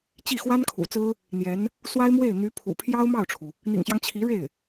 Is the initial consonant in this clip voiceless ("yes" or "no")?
yes